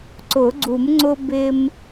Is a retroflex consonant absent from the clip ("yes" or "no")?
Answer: yes